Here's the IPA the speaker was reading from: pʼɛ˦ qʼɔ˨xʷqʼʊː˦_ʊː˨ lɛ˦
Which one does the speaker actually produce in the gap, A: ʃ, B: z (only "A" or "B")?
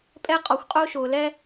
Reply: A